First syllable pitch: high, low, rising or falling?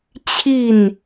falling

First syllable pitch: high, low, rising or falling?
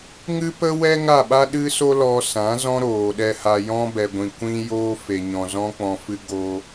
high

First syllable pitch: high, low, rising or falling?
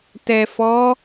low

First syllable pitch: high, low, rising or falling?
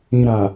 low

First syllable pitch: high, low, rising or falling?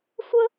high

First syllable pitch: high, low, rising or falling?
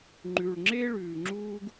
low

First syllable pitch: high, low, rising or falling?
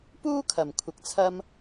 high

